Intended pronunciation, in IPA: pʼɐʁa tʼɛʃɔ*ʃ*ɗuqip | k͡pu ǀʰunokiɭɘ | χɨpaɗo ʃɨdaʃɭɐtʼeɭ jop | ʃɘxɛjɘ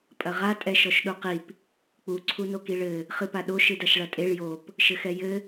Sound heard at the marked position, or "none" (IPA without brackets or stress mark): ʃ